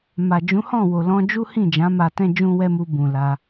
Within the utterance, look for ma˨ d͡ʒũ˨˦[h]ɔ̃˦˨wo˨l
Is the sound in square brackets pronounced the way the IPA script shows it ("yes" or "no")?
yes